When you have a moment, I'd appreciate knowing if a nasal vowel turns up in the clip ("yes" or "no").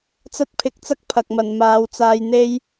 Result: no